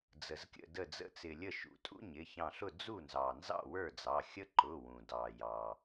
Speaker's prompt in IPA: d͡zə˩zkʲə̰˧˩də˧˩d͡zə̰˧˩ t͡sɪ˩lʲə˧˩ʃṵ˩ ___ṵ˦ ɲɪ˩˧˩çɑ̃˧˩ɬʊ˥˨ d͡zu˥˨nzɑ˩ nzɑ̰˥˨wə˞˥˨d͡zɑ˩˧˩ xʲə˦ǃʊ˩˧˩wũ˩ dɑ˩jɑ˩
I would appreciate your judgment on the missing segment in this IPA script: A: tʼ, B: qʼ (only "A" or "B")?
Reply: A